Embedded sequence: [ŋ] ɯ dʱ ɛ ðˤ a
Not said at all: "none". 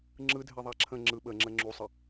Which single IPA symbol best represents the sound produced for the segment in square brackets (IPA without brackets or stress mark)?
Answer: ŋ͡ǁ